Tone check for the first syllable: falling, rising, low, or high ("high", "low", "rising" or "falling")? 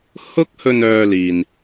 high